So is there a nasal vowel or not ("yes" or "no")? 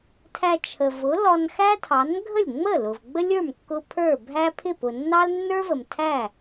no